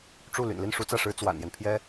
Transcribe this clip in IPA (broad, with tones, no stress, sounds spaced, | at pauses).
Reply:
ʈ͡ʂ u˥˩ l y̰˨˩ n l i˥˩ n ʂ u˥ t͡s ä˥˩ ʂ ɻ̩˥ t͡s w a̰˨˩ n j ɛ˦ n pʰ j ɛ˥